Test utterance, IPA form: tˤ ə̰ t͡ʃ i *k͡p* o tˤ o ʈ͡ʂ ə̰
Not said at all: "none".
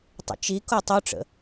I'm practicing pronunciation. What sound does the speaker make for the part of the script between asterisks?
k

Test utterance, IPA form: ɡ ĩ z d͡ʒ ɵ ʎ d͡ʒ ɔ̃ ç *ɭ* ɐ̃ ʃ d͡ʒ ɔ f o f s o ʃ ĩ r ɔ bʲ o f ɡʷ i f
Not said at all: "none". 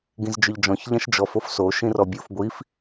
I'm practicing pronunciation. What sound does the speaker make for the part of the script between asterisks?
ʎ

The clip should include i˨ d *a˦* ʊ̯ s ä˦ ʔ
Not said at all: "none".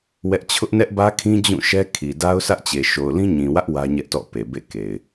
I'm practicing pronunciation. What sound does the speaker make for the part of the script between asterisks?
a˦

